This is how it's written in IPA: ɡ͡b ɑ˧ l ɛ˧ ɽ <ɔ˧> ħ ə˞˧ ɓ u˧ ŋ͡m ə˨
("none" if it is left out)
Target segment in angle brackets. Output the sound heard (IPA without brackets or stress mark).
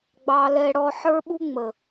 ɔ˧